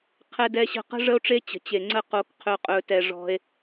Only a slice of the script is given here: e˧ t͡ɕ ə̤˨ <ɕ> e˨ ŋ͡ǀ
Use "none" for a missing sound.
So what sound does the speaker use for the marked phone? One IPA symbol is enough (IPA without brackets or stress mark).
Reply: t͡ɕ